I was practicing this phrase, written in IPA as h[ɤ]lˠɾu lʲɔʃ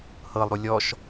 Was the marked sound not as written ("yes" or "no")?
no